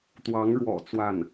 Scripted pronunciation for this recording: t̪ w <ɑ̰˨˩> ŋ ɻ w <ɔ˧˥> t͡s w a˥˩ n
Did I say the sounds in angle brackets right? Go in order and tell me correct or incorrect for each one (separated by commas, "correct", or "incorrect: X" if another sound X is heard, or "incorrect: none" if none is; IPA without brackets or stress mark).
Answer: incorrect: ɑ˧˥, incorrect: ɔ̰˨˩